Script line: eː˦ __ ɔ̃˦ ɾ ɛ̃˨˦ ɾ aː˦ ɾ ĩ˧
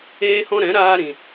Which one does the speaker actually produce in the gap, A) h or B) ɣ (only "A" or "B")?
A